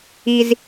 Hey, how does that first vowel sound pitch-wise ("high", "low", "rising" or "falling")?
high